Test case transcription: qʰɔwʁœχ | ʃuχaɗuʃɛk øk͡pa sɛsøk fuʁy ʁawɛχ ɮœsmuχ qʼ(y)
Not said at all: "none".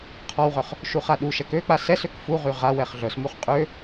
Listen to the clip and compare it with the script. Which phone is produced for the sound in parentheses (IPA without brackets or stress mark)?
ø